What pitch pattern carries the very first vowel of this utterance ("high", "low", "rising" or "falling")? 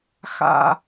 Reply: low